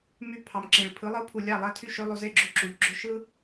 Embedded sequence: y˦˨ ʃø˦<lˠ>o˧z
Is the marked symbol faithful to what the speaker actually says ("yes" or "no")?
yes